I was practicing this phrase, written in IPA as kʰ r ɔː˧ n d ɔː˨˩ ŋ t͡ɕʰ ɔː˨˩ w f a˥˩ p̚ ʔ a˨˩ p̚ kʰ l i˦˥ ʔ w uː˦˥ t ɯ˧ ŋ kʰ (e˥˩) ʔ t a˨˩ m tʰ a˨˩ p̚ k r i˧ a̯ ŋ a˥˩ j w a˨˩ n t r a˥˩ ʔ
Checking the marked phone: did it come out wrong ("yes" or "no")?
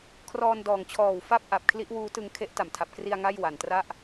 yes